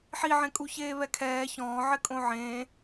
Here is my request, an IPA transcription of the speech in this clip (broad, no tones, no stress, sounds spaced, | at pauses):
ħ i ʕ ẽ kʼ u ç eː β ɛ kʰ ɛː ç ɔ̃ː ʕ ɪ kʼ õ ʕ ẽː